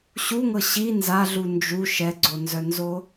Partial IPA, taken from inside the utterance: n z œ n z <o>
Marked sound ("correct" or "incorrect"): correct